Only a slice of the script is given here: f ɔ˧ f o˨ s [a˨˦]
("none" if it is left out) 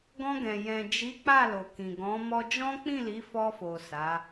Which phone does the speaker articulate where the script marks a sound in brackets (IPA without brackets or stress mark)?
a˨˦